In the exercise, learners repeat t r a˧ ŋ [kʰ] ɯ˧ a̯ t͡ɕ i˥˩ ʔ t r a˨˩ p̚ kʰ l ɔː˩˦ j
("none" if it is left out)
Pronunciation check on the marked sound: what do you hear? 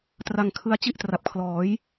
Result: kʰ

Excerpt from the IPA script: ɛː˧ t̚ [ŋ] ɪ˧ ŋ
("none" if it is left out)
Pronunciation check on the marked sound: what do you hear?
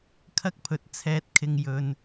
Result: kʰ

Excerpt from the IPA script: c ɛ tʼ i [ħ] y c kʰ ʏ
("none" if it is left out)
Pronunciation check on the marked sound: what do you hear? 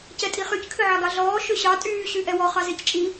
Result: χ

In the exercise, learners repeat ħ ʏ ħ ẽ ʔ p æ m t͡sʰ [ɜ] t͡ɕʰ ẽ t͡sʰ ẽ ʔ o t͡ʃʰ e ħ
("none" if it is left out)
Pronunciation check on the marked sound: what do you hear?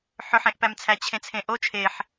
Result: æ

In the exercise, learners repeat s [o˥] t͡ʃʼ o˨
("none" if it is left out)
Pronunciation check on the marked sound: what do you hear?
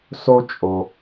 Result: o˥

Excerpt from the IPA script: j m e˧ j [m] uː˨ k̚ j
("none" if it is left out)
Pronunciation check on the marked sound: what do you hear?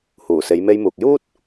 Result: m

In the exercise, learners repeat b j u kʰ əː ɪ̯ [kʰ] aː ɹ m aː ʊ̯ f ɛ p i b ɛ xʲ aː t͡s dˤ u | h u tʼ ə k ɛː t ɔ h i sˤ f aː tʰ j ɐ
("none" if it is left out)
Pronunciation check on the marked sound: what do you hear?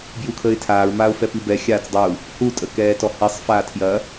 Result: tʰ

